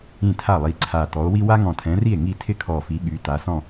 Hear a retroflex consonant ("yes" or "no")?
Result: no